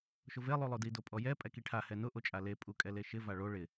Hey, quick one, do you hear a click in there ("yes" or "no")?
no